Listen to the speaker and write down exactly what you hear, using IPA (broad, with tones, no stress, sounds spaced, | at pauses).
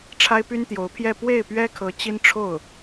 ʈ͡ʂʰ a˥ ɪ̯ p y˥ n t̪ j o˧˥ ʊ̯ pʰ j ɛ˥˧ p w e˥˩ ɪ̯ p ɥ ɛ˥ kʰ ɤ˧˥ t͡ɕ i˥ n ʈ͡ʂʰ o˥˩ ʊ̯